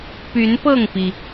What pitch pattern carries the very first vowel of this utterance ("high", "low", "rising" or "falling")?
rising